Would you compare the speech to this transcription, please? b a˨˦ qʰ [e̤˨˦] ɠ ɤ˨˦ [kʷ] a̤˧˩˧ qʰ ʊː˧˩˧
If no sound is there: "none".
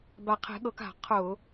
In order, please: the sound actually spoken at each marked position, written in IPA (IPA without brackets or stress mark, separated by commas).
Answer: e̤˨˦, k